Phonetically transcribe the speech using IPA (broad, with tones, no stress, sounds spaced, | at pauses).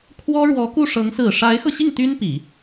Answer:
kʰ w ɔ˥ ɻ w ɔ˧˥ k u˥˩ ʂ ɤ˧˥ ŋ s ɹ̩˨˩ ʂ a˧˥ ɪ̯ x ɤ˧ ɕ i˥˩ ŋ t̪ y˥ n p i˨˩˦